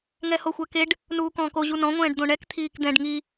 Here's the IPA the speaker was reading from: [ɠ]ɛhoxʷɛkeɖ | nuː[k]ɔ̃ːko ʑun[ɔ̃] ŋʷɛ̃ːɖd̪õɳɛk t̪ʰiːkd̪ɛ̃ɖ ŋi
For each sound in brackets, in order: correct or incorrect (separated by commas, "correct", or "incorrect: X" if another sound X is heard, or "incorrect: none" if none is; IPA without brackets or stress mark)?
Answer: incorrect: ŋ, correct, correct